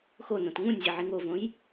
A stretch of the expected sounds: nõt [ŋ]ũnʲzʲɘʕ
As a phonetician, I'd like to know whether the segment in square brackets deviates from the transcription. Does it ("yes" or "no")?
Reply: no